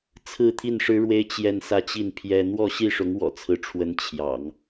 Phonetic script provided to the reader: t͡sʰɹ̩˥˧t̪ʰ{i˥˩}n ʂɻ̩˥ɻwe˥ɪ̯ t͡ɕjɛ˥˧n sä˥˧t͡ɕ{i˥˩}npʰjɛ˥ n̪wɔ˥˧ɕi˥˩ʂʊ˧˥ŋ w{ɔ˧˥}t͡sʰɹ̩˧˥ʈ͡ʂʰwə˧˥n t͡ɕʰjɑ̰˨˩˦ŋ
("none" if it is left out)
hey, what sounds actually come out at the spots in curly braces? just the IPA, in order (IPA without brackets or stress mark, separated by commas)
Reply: i˥˩, i˥˩, ɔ̰˨˩